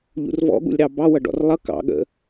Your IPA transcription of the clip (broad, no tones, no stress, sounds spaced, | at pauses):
ʎ ṵ r v ɔ̰ ɠ ṵ lʲ ɾ ɑ b ɑ w ʌ ɖ ɔ̰ r lˠ ʌ k ɑ̰ ɠ ə̰